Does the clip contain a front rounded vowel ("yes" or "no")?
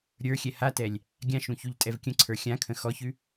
no